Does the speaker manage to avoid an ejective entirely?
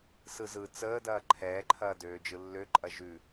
no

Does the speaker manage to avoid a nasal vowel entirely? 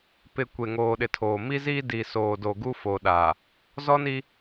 yes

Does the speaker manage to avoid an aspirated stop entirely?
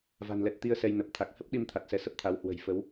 no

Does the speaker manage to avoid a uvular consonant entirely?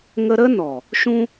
yes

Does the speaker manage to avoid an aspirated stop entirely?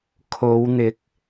no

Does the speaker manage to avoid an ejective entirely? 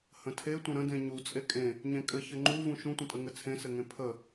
no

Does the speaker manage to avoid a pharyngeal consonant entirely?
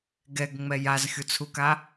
yes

